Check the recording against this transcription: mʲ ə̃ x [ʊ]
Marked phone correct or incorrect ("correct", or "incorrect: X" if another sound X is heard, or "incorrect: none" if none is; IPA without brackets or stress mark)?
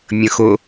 correct